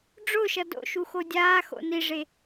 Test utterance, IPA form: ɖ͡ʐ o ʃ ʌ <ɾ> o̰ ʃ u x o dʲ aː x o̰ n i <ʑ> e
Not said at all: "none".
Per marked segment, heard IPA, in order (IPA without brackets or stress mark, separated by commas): d, ʐ